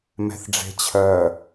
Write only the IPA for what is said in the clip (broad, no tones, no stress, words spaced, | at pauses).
mɛ̤θɖ͡ʐe̤t͡ɕʰœ